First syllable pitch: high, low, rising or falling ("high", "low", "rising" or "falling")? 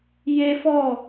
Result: high